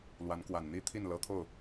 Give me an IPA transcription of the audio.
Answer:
l w a˧˥ n k w a˨˩ n n̪ i˥ t̪ʰ i˥˩ n l ɤ˧˥ t̪ʰ o˥˩ ʊ̯

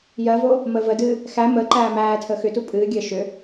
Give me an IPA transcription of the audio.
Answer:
j ɜ v o | m əː v ə d ɨː | x æ m əː ǃ æː m æː tʰ əː x ʏ t u pʼ ɨː ɡʲ əː ʃ ʏ

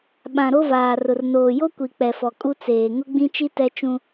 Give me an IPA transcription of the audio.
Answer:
ɓ ã˨ ɾ o˦ v aː˨ r ʊ˨ r n oː˨ j o˦ kʷ i˨ k͡p ɛ˨ f ɔ˨ kʼ u˦ t͡s eː˨ ŋ ʊ˦ ɡ͡b ĩ˦ t͡ʃ i˦ t ɛ˦ t͡ʃ ũ˦

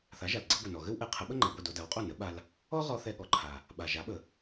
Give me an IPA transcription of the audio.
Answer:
θ a˩˥ ʒ a˩ l ɡ͡ǀ ə˧ ɡʷ ɛ˩ n ɔ˩ ɣ ɘ˥ w ʔ ɛ˩˥ qʰ ə˩˥ ɓ ə˥ ŋ͡ǃ a˩ ɡʷ ɛ˥˩ d o˧ d a˩˥ w qʼ o˥˩ n ə˩˥ ɓ a˧ l | ɔ˥ ʁ ɔ˧ θ ɛ˧ ɠ ɔ˩ ǃʰ a˩ | ɓ a˩ ʒ a˩˥ ɓ ə˩

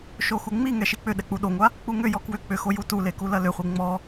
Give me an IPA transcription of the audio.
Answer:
ʃ o x u ŋ͡m i ŋ ɛ ʃ i k͡p ʏ ɗ ɛ k͡p u ɗ o ŋʷ a | k͡p u ŋ ʏ j ɔ k w ʏ k͡p ʏ x o j u t u l e k u l ɐ l ʏ χʷ i ŋ͡m ɔ

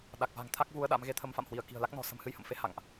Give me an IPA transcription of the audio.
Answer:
ɗ a˨˩ k̚ v a̤˨˩ ŋ t̪ʰ a˦˥ k̚ v u˨˦ ə̯ ɗ a̰˧˥ m ɣ e˧ t̪ʰ ə˧ m f a̰˧˨ m h w i˧˩ ə̯ k i̤˨˩ ə̯ l a˦˥ k̚ n ɔ̤˨˩ s ə̤˨˩ m h ɨ˧ j h ə̰˧˨ m f e˨˦ h a̰˧˨ ŋ ʔ

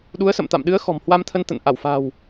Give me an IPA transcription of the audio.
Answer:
ɗ u˨˦ ə̯ s ə̰˧˨ m t̪ a̰˧˨ m ɗ ɨ˨˦ ə̯ x ɔ̤˨˩ m h w a˧ m t̪ʰ ə˧ n t̪ ə̰˧˨ n ʔ a˧˩ w f a̤˨˩ w

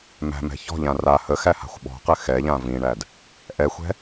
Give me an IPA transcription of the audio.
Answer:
m æ̤ m ɛ̤ ç ɔ̤ ʎ ã r a h ə x æ h a̤ xʷ ɓ ɔ̤ q ɘ x ɛ ʎ ã v ĩ ɳ æ d | ʔ ɛ xʷ ɛ̤

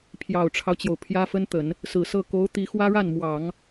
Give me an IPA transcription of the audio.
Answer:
pʰ j ɑ˨˩ ʊ̯ ʈ͡ʂʰ ɑ˦ ʊ̯ t͡ɕ j o˩ ʊ̯ pʰ j ä˥ f ə˥ n t̪ ə˨˩˦ n | s ɹ̩˨˩ s ɤ˥˩ k o˧˥ ʊ̯ t̪ i˧˥ x w ä˥ ɻ a˥˩ n m w ɑ˨˩˦ ŋ

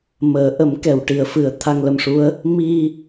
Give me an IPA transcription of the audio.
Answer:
m əː˨˩˦ ʔ ə˨˩˦ m k ɛ˨˩˨ w ʈ i˨˩˨ ə̯ f ɨ˨˩˦ ə̯ t̪ʰ a˧ ŋ l ə˧ m ʂ u˧˥ ə̯ | m i˧

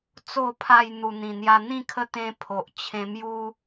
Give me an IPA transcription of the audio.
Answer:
t͡s o˨˩ pʰ a˨˩ j n̪ u˨˩ n̪ ĩ˨˩ n̪ j a˧ n̪ ĩ˥˧ kʰ ə˦ t̪ ẽ˧ pʰ o˨ ʔ t͡ɕʰ ẽ˧ m j u˦

